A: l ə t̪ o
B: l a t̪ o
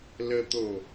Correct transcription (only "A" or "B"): A